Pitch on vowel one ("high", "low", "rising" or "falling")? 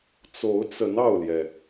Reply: rising